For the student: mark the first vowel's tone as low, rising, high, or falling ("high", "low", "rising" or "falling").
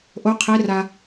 rising